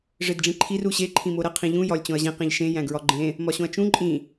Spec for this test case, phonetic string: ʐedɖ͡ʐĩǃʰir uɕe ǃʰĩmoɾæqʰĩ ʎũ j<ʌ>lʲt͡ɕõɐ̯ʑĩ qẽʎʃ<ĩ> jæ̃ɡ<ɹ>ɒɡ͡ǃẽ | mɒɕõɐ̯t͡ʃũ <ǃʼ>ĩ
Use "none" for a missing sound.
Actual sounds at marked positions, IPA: ɒ, ẽ, ɹ, ǃʼ

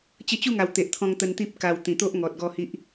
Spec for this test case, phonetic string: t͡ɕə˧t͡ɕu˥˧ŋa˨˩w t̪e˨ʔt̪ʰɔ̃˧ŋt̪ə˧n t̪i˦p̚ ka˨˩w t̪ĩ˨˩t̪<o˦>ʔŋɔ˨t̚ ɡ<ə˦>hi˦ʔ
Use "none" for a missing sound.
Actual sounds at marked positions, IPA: o˦, ɔ˦

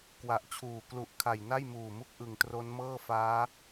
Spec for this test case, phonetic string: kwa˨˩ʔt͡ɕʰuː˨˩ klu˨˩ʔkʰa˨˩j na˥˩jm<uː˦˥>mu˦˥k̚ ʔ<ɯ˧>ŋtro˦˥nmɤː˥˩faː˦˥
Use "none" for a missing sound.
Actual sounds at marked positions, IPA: uː˨˩, ɯ˨˩

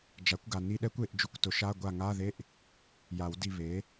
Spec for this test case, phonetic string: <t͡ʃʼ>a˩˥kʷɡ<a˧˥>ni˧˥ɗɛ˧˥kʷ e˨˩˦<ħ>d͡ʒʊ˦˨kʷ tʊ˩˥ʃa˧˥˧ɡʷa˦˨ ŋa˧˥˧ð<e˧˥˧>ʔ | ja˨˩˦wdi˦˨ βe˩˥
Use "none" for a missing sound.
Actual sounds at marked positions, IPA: d͡ʒ, a˨, ʔ, e˧˥˧

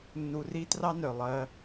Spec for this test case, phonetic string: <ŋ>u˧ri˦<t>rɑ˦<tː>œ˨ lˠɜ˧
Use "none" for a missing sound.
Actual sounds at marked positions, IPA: nː, t, n

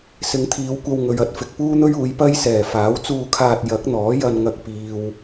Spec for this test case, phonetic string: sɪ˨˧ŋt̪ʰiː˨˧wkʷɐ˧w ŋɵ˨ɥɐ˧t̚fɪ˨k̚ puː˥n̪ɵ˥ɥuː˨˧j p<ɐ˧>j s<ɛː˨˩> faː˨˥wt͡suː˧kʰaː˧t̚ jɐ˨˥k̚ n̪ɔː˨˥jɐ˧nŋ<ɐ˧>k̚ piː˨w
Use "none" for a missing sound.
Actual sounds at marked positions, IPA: ɐ˥, ɛː˨˩, ɐ˧

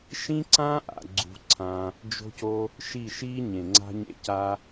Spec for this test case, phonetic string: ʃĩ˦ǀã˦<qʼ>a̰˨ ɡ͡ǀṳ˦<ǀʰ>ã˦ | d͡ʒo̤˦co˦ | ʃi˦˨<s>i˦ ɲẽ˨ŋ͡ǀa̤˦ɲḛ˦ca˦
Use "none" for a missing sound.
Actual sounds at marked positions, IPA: ʔ, ǀʰ, ʃ

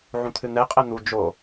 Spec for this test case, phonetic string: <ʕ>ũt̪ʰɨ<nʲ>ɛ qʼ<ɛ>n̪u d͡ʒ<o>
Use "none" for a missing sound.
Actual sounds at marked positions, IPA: ʕ, n̪, ɛ, o

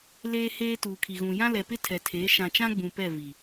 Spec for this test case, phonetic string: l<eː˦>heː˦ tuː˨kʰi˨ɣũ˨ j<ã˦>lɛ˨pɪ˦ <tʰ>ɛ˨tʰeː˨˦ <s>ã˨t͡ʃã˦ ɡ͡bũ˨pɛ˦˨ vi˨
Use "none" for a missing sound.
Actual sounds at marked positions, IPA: eː˦, ã˦, tʰ, ʃ

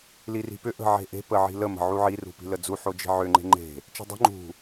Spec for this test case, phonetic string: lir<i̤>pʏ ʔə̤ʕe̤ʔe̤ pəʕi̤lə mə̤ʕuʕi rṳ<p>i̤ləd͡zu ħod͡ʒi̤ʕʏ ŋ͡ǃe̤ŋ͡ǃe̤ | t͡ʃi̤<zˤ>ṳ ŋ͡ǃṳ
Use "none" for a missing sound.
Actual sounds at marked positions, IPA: i̤, p, dˤ

